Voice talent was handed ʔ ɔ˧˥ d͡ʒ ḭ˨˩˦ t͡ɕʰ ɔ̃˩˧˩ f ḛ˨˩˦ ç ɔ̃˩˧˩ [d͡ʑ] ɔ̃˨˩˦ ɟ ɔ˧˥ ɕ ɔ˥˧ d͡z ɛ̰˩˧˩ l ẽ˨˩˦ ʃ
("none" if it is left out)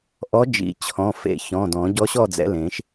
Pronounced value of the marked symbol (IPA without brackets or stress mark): d